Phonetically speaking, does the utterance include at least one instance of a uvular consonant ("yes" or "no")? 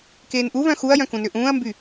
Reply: no